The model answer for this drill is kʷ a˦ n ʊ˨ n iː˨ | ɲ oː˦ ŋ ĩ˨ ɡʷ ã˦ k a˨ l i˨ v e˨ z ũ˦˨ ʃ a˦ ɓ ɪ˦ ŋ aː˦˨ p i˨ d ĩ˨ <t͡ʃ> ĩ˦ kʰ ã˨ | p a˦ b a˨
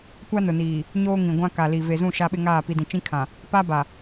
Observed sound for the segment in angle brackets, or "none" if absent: t͡ʃ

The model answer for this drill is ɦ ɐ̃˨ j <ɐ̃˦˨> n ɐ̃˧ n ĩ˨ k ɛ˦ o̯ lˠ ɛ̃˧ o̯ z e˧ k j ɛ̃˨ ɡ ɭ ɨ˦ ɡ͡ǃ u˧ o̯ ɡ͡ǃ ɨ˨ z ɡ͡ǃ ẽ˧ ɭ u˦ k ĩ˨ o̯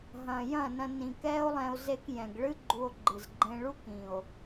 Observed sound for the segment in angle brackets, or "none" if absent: ɐ̃˦˨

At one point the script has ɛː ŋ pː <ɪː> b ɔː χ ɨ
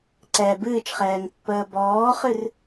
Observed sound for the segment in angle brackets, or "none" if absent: əː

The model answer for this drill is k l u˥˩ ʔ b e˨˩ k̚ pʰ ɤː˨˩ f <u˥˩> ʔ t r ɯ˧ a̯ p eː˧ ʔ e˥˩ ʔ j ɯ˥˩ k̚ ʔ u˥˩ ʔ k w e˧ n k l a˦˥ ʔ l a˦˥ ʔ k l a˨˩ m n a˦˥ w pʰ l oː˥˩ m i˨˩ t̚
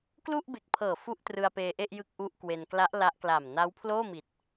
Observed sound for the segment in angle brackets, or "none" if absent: u˥˩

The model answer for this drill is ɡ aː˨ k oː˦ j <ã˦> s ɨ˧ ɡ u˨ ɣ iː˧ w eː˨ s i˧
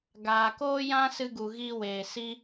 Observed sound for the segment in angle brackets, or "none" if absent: ã˦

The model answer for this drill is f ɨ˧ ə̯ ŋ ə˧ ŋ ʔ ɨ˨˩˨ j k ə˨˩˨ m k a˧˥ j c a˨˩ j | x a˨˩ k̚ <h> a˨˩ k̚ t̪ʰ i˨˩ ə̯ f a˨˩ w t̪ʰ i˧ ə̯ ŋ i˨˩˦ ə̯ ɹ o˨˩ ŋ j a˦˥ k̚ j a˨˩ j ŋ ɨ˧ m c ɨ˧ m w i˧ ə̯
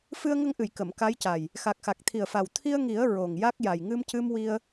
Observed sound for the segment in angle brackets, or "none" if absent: x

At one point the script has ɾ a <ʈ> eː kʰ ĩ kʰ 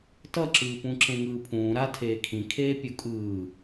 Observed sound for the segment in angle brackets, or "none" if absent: tʰ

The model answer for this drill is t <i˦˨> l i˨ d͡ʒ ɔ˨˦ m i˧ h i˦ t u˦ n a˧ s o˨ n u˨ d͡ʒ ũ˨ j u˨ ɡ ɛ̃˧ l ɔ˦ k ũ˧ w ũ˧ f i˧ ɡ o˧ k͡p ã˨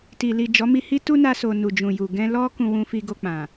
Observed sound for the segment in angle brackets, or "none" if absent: i˨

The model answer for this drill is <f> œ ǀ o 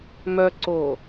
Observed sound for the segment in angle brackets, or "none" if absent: m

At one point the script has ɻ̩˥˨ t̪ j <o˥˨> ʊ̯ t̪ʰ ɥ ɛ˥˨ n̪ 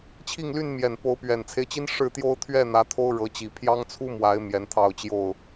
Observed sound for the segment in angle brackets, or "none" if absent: o˦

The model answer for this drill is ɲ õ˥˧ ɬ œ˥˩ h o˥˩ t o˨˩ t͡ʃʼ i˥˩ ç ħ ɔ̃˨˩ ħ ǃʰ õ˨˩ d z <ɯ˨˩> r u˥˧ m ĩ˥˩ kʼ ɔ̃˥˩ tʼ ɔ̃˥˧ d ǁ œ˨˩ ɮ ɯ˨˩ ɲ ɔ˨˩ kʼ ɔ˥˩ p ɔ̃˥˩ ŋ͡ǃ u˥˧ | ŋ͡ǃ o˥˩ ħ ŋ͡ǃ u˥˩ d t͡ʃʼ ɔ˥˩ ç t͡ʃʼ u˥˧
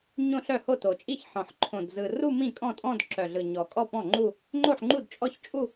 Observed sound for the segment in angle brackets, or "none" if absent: ɯ˨˩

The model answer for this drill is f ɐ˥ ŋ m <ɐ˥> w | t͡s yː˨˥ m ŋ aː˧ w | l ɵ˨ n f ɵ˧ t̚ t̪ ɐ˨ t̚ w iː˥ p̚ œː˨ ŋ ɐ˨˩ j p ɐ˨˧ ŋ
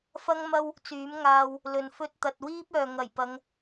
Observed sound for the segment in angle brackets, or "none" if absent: ɐ˥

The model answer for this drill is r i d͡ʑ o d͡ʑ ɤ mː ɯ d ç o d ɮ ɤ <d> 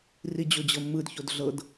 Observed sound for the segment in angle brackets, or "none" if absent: d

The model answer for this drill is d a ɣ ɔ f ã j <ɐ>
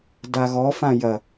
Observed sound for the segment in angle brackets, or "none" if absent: ɐ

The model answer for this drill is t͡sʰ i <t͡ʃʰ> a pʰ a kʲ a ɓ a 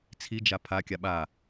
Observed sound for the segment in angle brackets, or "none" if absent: d͡ʒ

